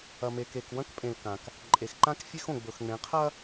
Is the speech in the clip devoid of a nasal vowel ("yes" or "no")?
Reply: no